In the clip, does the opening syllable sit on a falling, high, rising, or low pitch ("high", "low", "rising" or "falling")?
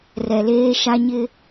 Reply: low